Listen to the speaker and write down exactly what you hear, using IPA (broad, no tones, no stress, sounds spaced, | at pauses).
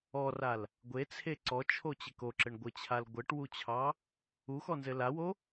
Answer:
ɔ r a l | ɡʷ e t͡sʰ e ǀ ɔ t͡ʃʰ o t͡ɕ ɘ k o ǁ ɘ ɳ ɡʷ ɘ t͡ɕʰ a l ɡʷ ɘ ʈ w u t͡ɕʰ ɑ | u x ɔ n z ɘ l a w o